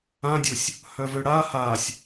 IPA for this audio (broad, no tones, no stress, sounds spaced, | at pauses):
ã dʲ u sʲ | h œ v ø ɽ a h a sʲ